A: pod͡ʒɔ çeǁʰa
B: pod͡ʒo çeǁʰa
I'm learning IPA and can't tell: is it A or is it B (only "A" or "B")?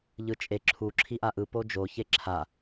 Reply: B